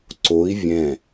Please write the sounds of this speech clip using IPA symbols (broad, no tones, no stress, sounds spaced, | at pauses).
ǀ o i̯ vʲ ɛ̃